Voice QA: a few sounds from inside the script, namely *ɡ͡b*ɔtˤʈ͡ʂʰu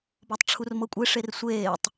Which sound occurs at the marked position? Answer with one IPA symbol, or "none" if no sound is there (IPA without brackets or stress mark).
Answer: b